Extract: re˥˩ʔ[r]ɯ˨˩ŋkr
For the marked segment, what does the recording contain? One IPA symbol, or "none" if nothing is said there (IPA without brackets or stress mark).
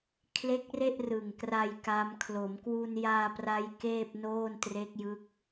r